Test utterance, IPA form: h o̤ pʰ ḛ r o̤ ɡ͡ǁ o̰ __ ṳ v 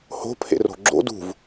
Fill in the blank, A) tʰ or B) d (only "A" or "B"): B